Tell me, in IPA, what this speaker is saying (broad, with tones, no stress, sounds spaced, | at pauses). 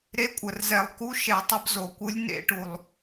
ɾ e˧˥ kʷʼ ə˨˩ r z ɛ˧˩˧ lˠ k u˧˥ ʃ ɛ˧˩˧ tˤ ə˧˥ b z o˨˩ kʷ ɯ˧˥ lʲ n ḛ˧˩˧ ʈ u˨˩ lˠ